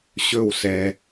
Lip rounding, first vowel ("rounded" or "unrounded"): rounded